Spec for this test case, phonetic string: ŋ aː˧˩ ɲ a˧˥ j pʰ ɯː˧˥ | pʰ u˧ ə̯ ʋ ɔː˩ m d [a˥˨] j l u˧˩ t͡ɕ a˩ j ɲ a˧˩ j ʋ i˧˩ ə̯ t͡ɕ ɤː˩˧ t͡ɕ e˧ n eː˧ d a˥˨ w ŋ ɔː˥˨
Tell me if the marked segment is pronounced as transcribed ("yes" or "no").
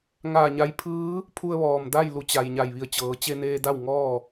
yes